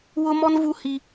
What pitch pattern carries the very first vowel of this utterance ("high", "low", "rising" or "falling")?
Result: high